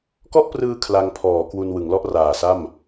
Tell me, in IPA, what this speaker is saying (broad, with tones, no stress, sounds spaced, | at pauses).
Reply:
k ɔ˥˩ ʔ p r ɯː˧ kʰ l a˧ ŋ pʰ ɔː˩˦ k w u˧ n w ɯ˩˦ ŋ l ɔ˥˩ ʔ r aː˨˩ s a˥˩ m